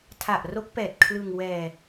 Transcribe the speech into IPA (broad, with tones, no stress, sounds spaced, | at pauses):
tʰ a˨˩ ʔ r o˦˥ k̚ p ɛː˨˩ t̚ kʰ l ɯ˧ ŋ w ɛː˧